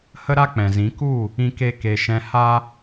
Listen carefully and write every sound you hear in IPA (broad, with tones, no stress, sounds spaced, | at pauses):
h ə˦ ɾ a˦ k͡p ɛ̃˨ z ĩ˨˦ k u˦˨ | ĩ˦ k e˦ k e˨ ʃ ɛ̃˧ h a˦